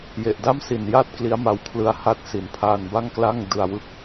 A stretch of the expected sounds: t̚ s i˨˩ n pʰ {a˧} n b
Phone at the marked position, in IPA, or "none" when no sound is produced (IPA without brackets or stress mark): aː˧